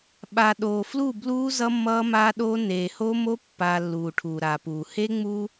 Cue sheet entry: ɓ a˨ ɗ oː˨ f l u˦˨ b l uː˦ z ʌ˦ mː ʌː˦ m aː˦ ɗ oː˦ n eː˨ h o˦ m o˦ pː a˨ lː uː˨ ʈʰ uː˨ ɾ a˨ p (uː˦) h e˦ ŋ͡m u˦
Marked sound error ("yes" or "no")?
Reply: yes